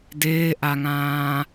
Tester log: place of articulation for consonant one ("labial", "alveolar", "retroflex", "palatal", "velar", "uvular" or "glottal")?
alveolar